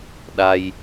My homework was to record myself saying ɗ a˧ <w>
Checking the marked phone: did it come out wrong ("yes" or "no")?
yes